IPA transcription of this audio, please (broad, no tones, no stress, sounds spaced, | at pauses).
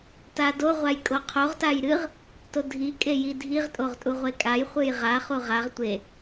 t a d o ʁʷ a j kʼ o qʰ o ʁ t a j ɾ ɨ ʁ | t o dʱ i kʼ e j i dʱ i ʁ tʼ o ʁ tʼ u ʁʷ e kʼ a j χʷ ɨ j ʁ a χ u ʁ a ʁ tʷ e